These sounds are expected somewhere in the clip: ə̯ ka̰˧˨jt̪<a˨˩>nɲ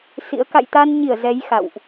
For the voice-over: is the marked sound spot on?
no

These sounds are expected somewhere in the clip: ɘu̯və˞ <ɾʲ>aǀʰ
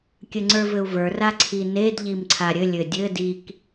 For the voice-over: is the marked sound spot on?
no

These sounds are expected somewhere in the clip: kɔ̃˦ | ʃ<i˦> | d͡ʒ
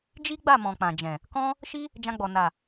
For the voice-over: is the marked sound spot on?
yes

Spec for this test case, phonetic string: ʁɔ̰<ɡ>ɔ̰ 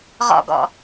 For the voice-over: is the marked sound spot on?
yes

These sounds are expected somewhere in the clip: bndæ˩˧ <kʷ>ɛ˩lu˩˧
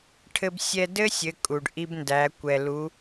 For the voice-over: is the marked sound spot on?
yes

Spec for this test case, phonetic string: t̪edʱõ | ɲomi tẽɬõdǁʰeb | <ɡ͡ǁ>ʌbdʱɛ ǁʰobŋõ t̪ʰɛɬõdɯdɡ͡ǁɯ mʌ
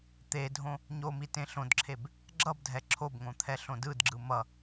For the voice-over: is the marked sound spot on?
yes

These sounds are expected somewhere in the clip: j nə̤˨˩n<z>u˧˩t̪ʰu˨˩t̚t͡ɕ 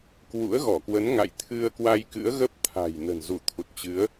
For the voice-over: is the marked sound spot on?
yes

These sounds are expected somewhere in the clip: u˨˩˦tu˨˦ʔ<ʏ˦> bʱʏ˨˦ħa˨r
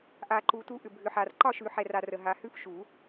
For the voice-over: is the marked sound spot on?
no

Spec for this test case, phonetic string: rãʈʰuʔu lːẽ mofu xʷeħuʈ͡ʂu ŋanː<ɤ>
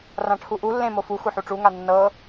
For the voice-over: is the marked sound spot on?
yes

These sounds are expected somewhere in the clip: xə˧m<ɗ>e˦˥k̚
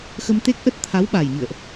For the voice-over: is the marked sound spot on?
no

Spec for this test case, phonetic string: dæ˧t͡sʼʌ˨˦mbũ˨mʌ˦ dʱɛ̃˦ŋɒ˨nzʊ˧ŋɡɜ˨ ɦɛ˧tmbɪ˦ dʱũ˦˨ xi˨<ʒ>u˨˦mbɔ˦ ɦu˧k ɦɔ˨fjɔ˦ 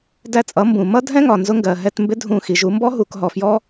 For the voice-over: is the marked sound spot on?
yes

